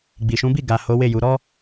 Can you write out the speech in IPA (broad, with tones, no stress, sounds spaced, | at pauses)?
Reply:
ɡ͡b i˨ ʃ ũ˨˦ b i˦˨ ɡ a˨ h o˨˦ w e˦˨ j u˨˦ ɾ ɔ˦